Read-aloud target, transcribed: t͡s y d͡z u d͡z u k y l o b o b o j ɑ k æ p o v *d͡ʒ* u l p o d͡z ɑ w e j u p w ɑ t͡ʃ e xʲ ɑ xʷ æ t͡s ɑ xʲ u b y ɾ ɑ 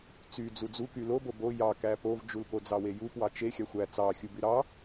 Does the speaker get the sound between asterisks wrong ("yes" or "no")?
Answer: no